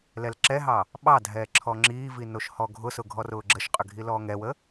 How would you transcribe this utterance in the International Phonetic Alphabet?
l ɛ l ǁ ɛ ɦ ɑ | ɓ ɑ dʱ ɛː ǁʰ ɔ ŋ͡ǁ iː v i n o ʃ h ɔ ɡʱ ʊ s ʊ ɡʱ ɔ r ʊː ɡ͡ǁ ə ʃ qʼ ʏ ɡʱ i l ɔː ŋ ɛ w ə

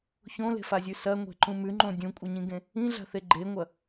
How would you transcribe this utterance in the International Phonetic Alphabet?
ç õ l e̤ f a zʲ ʉ s ɐ ŋʷ e̤ ǃ ũ m ʉ ŋ͡ǃ õ dʲ ũ kʷʼ ɐ ɲ ĩ ɡ ẽ | ĩ ɮ a̤ θ e ɡ͡ǃ e ŋʷ ɐ

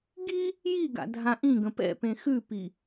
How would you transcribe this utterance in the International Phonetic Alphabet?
ɡ i | j i ɡ a̰ dʱ ã ʔ ĩ ɡ ə̃ p ɛ̰ p ẽ x ʉ p i

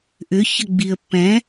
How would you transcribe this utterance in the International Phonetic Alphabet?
ʔ ʏ ç ə ɡ͡b i ə̯ pː ɛ̃

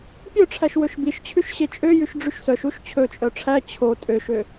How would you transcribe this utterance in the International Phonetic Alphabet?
pʲ œ ʈ͡ʂʰ æ ʃ w ɵ ʃ b i ʃ t͡ɕʰ ʉ ʃ ɕ e t͡ʃʼ ø j ʉ ʃ ɖ͡ʐ y ʃ s œ ʃ u ʃ t͡ɕʰ ɵ t͡ʃʼ œ ʈ͡ʂʰ æ t͡ɕʰ o tʼ ø ʃ ø

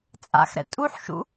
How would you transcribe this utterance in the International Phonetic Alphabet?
t͡sʼ a̰ x ɾ ɛ̰ tʼ u ħ ʃ ṵ

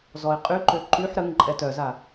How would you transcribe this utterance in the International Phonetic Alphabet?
z ɔ ɪ̯ qʼ y ǃ ø ǃ y ħ ɾ ə ŋ ǃʼ ɛ t œ z a

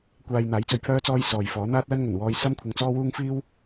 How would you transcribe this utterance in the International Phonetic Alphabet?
kʷ aː˧ j n̪ aː˨˥ j t͡s ɵ˧ ɥ pʰ œː˥ t͡s ɔː˥ j s ɔː˨ j f ɔː˨˥ n̪ aː˥ t̚ l ɐ˥ n ŋ ɵ˨˩ n w ɔː˧ j s ɐ˥ m kʷʰ ɐ˧ ŋ t͡s ɔː˥ w uː˥ ŋ f iː˥ w

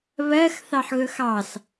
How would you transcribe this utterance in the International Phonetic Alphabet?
β ɜ x θ ɑ ħ ɣ ɵ x ɑ s

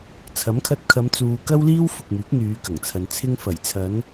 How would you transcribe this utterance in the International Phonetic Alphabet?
t͡sʰ ɐ˨˥ m kʰ ɐ˧ t̚ kʰ ɐ˨˧ m t͡s uː˨ k ɐ˥ w l iː˥ w f ʊ˨ k̚ m yː˨˥ k̚ n̪ yː˨˧ k ɐ˨˩ ŋ t͡sʰ ɐ˨ n t͡sʰ ɪ˧ ŋ f ɐ˨˩ j t͡sʰ ɐ˨˧ n

